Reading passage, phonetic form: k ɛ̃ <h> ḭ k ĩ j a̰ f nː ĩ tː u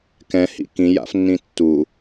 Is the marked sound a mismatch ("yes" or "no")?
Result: no